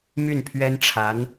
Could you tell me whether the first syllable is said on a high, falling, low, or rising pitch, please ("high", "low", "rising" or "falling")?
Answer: falling